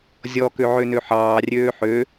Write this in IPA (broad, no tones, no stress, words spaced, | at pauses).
zʲɔ køʕønøħɑː rʲøːħø